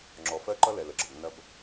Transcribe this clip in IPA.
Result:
ŋ͡ǁ ɔ˨ f ɜ˦ ǃ ʌ˦ l ɛ˨ l ə˨ ɡ͡ǁ ʌ˨ b nː ɐ˦ b

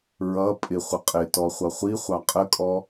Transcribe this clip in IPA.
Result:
ɹ ʌ pʼ ɪ χʷ ə qʼ ɪ t ɔ χʷ ʌ χʷ i χʷ ɑ qʼ ə kʼ ɔ

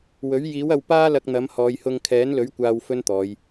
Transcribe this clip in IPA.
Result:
w ɵ˨˥ ɥ j iː˨˥ w ɐ˧ w p aː˥ l ɐ˧ k̚ n̪ ɐ˨˥ m h ɔː˨˧ j h ʊ˧ ŋ kʰ ɛː˨˥ n l ɵ˨˥ ɥ kʷ aː˧ w f ɵ˥ n t̪ ɔː˨˧ j

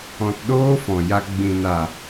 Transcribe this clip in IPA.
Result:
ɔ̃˧ t ɗ oː˦ f ɔ̃˨ j a˧ ɡ͡b ĩ˨ n a˨

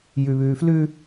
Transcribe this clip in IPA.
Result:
j ʉ β ʉː f l ʉ

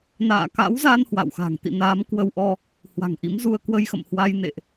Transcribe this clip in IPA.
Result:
n a̰ː˧˨ k a̰˧˥ w z a˧ n h w a̰˧˨ w x a̤˨˩ ŋ t̪ ḭ˧˨ n aː˨˦ m k w ə˧ w ʔ ɔ˧ | h w a̤˨˩ ŋ ʔ ḭ˧˥ m z u˧ ə̯ k w ə˧ j x ə̰˧˨ m h w a˧ j n ḛ˧˨ ʔ

